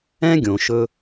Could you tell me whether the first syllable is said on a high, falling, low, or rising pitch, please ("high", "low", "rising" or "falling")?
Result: high